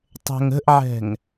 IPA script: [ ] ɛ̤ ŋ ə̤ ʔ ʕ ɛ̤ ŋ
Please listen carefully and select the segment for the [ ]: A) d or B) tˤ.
B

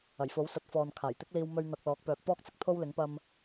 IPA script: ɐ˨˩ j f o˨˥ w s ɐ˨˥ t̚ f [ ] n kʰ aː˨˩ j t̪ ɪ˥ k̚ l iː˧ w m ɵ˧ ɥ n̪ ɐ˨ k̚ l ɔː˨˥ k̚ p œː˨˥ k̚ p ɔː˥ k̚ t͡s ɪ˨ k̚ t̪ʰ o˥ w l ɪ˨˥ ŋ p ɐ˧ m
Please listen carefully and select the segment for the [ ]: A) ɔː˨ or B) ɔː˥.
A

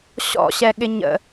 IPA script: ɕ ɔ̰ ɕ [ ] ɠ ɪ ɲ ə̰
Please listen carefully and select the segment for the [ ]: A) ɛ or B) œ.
A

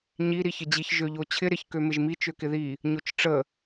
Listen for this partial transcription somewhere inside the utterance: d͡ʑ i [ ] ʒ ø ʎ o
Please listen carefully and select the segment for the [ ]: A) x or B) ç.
B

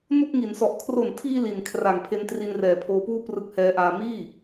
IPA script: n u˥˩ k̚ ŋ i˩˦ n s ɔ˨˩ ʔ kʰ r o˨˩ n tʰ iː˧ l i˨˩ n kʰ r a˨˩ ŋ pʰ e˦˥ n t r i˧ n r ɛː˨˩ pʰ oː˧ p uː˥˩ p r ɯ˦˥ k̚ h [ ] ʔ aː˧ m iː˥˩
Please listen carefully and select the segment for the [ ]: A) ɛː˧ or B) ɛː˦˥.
B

